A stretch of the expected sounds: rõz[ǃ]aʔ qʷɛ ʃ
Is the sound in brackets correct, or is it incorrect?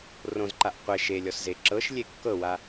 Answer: correct